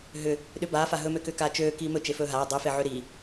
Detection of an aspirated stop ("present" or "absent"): absent